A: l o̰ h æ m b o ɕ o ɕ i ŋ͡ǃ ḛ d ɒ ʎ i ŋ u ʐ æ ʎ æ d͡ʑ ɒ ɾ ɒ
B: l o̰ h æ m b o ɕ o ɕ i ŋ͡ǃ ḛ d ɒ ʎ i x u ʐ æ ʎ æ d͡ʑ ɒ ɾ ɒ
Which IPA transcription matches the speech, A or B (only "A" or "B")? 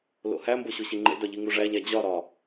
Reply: A